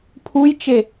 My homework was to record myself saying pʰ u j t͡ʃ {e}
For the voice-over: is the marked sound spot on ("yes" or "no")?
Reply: yes